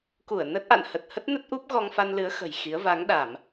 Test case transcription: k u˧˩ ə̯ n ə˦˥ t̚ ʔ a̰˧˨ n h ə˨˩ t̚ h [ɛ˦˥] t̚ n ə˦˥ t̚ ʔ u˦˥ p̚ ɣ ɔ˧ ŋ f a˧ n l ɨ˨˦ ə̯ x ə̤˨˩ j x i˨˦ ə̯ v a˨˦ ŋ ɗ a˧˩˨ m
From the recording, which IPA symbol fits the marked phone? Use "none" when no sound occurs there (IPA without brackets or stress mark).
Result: ə˦˥